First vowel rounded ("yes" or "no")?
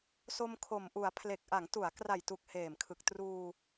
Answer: yes